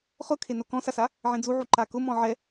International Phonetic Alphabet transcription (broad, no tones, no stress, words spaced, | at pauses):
χʊkʰe nokɔ̃sasa | ʕẽd͡zuʕu ǃakʊ mɔ̃ʕɛ